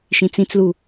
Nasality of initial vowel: nasal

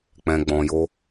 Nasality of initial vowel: nasal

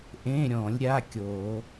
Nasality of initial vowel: nasal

